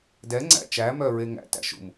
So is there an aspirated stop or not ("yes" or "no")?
no